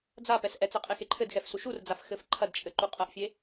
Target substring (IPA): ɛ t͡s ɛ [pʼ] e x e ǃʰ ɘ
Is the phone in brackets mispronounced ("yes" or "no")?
yes